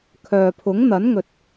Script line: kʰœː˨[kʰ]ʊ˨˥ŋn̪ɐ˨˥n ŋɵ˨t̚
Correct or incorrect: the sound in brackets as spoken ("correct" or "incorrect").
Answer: incorrect